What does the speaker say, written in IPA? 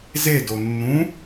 z e d o nː ũ

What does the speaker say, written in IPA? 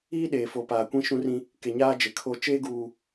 iː˦ ɗ eː˨ f o˨ p aː˨ kʷ ĩ˦ ʃ ũ˦ r ĩ˦ | k e˨ ɲ aː˦ d͡ʒ e˨ kʰ o˦ t͡ʃ eː˦ ɡ uː˨

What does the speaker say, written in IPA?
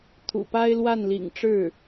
t̪ʰ ṵ˨˩ p a˥ ɪ̯ l w a˥˩ n l ḭ˨˩ ŋ ʈ͡ʂ ɻ̩˥˩

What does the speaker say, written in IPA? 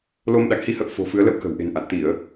l o˧ m ɗ a̰˧˨ ŋ h i˧ h ə̰˧˨ w f o̤˨˩ f ɨ˨˦ ə̯ l ə̰˧˨ w k ə̤˨˩ w ʔ e̤˨˩ n ʔ a̰˧˨ n t̪ i˧˩˨ ə̯

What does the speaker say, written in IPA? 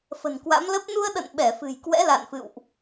f ə̤˨˩ n k w a̰˧˥ m l ə˦˥ p̚ n u˧ ə̯ ɗ ə̰˧˨ n ɓ ɛ˧˩ f ɨ̤˨˩ j k w ɛ̰˧˥ l a̰˧˨ n f ɨ̰˧˨ w ʔ

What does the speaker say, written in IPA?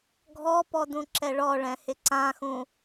ɡʱ ɔ p ɔ d ũ ǁ ɛ ɭ ɔ ɭ ɛ̃ h ɪ ǀ ã x ũ

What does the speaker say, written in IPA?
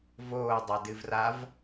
v oː dˤ a d ɨ v r a v

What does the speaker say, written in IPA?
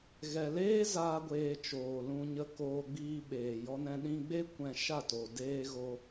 ɣ ɛ˨ l eː˦ z aː˦ ɡʷ eː˧ t͡ʃ oː˨ l ũ˧ ɲ ə˧ k oː˧ ɡ͡b iː˧ ɓ eː˨ j ɔ˦ n ɛ̃˦ ɗ ĩ˧ ɡ͡b e˦ kʷ ɛ̃˧ ʃ a˦˨ t o˨ d eː˧ ɣ o˧

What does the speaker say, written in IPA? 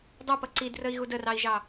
dˤ u p ʌ ǀ i d r ə i̯ ɣ u d ə r ɑ i̯ ʒ ɑ

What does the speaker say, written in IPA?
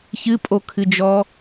ç ɨ pʼ o kʰ ɨ d͡ʒ ɔ

